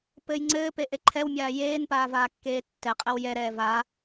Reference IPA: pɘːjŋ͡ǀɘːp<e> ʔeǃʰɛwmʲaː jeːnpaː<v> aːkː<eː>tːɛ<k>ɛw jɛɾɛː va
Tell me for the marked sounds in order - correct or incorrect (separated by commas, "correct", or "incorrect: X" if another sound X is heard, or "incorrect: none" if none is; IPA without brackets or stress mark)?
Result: correct, correct, correct, incorrect: qʼ